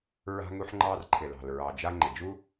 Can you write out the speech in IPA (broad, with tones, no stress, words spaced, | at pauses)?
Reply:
ɹa̤˧ŋu˧ħŋ͡ǃɑ˧r ǃʰɪ˩lɑ̤˩l ɹɑ˩d͡ʒa˧ ŋ͡ǃɪ˩d͡ʒu˥